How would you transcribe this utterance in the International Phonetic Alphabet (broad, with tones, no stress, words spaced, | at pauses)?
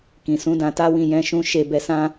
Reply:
kĩ˨sũ˨˦ dã˧ta˦wĩ˦˨ jɛ̃˧ʃũ˧ ʃe˧bɛ˧sã˦